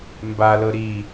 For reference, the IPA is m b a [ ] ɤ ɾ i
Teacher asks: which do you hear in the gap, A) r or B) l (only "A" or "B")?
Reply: B